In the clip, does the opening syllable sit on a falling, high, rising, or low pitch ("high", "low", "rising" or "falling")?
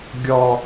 low